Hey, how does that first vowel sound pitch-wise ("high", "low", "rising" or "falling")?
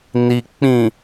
low